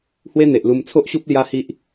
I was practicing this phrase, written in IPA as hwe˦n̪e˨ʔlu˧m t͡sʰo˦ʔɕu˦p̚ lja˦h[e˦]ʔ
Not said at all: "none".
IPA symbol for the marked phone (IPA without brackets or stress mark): i˦